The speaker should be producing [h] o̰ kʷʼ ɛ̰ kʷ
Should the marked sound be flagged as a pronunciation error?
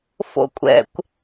yes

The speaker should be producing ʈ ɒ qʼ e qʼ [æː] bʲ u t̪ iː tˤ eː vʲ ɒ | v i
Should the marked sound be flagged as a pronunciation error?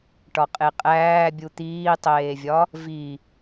no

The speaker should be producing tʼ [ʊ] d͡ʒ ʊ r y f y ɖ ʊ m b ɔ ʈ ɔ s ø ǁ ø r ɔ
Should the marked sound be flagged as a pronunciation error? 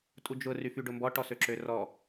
yes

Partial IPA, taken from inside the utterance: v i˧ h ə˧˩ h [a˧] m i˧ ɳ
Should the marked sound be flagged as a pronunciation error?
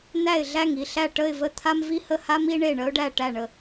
no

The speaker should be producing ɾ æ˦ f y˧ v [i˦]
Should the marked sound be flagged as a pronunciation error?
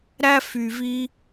no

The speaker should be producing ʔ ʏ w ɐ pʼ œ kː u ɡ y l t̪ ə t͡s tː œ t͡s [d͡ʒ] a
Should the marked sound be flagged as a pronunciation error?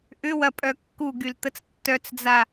yes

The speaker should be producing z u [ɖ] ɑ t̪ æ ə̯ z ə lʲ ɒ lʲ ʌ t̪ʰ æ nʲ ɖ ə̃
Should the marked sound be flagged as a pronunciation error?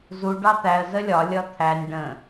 no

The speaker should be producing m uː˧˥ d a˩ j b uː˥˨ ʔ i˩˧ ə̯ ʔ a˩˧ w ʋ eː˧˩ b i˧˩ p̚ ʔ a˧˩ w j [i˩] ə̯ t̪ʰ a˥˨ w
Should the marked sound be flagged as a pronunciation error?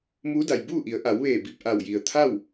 no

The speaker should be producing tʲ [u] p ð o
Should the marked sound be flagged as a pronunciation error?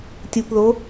no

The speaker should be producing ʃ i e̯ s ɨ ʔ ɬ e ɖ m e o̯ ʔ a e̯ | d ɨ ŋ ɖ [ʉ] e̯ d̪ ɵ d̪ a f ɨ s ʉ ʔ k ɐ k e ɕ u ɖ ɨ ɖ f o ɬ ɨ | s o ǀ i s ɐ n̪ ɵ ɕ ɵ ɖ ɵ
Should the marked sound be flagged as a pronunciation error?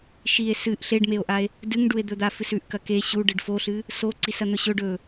yes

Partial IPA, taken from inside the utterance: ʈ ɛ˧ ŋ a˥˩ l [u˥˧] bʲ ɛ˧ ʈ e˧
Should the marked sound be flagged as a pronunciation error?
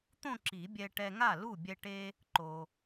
yes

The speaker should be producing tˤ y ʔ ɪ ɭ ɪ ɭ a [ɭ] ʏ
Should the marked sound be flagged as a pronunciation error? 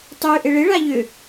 yes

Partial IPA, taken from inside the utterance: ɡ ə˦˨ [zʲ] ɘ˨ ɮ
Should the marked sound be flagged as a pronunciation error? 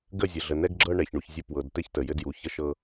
no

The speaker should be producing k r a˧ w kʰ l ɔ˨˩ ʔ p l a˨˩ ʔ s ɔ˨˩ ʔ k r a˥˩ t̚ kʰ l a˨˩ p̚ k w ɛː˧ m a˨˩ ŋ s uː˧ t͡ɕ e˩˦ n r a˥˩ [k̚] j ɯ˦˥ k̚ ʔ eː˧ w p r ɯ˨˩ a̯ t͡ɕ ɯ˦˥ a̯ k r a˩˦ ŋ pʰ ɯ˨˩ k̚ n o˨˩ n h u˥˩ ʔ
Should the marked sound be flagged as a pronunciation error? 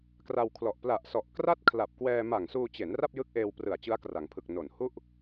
yes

